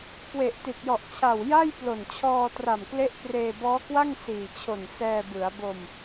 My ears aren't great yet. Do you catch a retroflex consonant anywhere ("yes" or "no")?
no